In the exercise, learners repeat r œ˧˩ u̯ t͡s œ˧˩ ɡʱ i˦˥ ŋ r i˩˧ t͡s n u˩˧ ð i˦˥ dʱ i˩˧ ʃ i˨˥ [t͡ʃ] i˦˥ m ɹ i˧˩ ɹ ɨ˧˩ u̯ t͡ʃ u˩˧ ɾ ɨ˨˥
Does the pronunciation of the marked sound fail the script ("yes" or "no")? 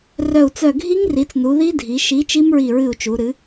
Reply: no